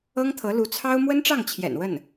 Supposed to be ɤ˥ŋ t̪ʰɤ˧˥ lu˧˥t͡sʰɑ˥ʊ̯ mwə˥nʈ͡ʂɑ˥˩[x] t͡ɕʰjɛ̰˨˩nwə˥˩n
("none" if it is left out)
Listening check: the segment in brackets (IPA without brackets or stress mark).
ŋ